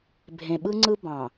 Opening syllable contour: low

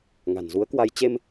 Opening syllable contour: low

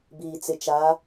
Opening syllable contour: low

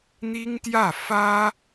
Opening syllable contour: high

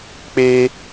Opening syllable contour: high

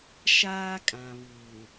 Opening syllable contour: high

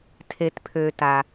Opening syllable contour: low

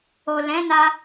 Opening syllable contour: low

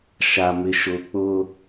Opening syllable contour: low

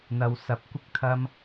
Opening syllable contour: low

